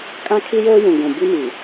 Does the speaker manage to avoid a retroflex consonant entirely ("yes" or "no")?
yes